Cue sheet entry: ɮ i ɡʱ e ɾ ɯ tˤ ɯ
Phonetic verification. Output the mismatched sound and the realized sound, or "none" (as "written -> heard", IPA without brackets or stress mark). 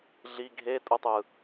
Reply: ɾ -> tʼ